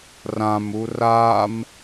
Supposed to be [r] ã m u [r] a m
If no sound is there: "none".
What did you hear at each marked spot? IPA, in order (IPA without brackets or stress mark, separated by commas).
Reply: r, r